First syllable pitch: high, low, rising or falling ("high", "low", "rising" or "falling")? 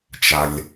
low